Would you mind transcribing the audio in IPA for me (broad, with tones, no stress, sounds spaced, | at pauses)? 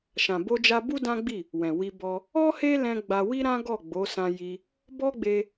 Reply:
ʃ ã˨ b o˧ d͡ʒ a˧ b u˦ d ã˦ ɡ͡b i˦˨ | w ɛ̃˨ w i˧ b ɔ˧ | ɔ˦ h e˦ l ɛ̃˧ ɡ͡b a˧ w i˦ ɾ ã˦ ɡ ɔ˦˨ ɡ͡b o˨˦ s ã˧ j i˧ | b ɔ˦ ɡ͡b e˧